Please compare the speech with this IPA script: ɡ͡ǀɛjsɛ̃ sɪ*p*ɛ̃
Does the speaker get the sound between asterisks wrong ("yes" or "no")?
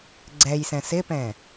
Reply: no